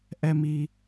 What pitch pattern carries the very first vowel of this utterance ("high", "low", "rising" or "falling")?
high